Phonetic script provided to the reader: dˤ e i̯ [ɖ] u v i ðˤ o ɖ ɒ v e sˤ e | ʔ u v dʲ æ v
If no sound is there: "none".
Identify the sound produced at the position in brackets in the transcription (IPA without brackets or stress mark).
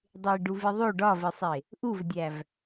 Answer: ɖ